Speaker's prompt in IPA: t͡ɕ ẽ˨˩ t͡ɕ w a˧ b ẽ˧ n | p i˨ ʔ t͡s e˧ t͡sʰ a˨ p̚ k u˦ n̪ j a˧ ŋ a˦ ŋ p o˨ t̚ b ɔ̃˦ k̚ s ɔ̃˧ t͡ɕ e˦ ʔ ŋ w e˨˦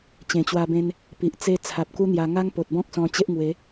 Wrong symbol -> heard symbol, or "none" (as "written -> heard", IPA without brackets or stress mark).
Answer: none